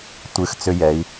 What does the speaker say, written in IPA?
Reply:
tʷ ɨ˨ x t͡s ʏ˦ j ɛ˨˦ i̯

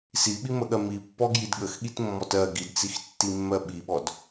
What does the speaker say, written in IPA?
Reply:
s i ɓ i m ə ɠ ɜ m i pː ɔ ɡ j i d ɠ ə x ɠ i t mː ɔ t ɜ ɡ i d t͡s i x tː i mː ɜ ɓ i ɓ ɔ d

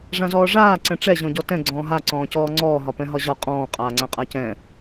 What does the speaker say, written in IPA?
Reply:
ʐ ã z ɔː ʐ aː ǀ ɛ̃ ʈ͡ʂ ɛ ʑ ɔ̃ ɟ ɔ t ɛ̃ ɡ͡ǀ ɔ̃ː ɦ a ǀ ɔ̃ː c ɔː ŋ͡ǀ ɔː ɦ ɒ p ɛ̃ ɦ ɒ ʑ ɒ qʼ ɔ̃ː qʼ aː ŋ͡ǀ ã qʼ a c ɛ̃

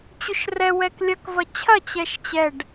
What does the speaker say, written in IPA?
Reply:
t͡ɕ ʏ ʃ r ɛ w ɛ k lʲ ɐ k v ɐ t͡ɕʰ ɐ t͡ɕ ɛ ʃ t͡ɕ ɛ ɖ

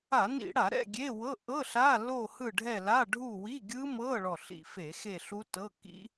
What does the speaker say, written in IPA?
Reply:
a˧˩˧ n ḭ˧˩˧ ɽ a˧˩˧ ɾ ɛ̰˦˨ ɡʲ e˧˥˧ w ɤ˧˥˧ ʔ ɤ˧˥˧ ɬ a˧˥˧ l o˦˨ h ɯ˦˨ ɖʱ ɛ˦˨ l a˧˥˧ ɖʱ u˦˨ w i˧˥˧ ɡʲ ɯ˦˥ m ɤ˧˥˧ ɭ ɔ˦˨ ɬ ḭ˦˨ f e˧˩˧ x e˦˨ ɬ u˦˥ t ɤ˧˥˧ k ḭ˦˥

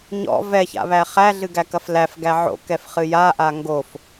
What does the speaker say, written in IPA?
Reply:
ɲ ɔ̰ v ɛ ç a̰ β æ χ æ ɮ ɨ ɡ æ k ɐ f l æ f ɡ æ ʕ o̰ k ɛ f χ ɨ j a ʔ a ŋ ɡ o f

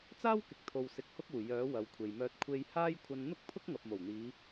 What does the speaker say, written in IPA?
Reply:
t͡s aː˥ w k ɪ˨ k̚ t̪ʰ o˨ w s ɪ˧ k̚ h ʊ˥ k̚ uː˨˩ j œː˨˥ w ɐ˨ w kʷʰ e˨ j m œː˧ t̚ kʷʰ e˧ j h aː˥ j kʷʰ ɐ˧ n n̪ ʊ˥ k̚ pʰ ʊ˥ k̚ ŋ ɐ˨ p̚ m o˨˩ w n̪ iː˨˧

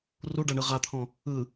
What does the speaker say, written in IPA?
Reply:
r u ɖ a ɳ ɯ ʁ a t̪ʰ ɔ̃ | ɯ

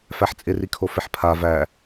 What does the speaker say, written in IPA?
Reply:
f æ ħ t͡sʼ ɪ r i kʰ o f ɪ ħ pʰ a v æ

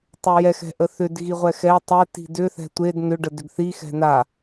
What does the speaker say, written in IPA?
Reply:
tˤ ʏ j ɛ x ɛ̤ ʔ ə θ ʏ d ɣ i ʁʷ ɛ x ɛ tˤ ɛ t i̤ d ʏ θ ɛ̤ tʷ e d n ʏ ɖ ə d ʏ ɡ θ i x ɛ̤ n a

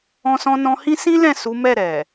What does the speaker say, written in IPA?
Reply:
ɔ̃˧ s ɔ̃˧ n ɔ̃˧ h ĩ˦ s ĩ˦ l ɛ̃˦˨ s u˨˦ m ɛ˦˨ ɾ ɛ˨

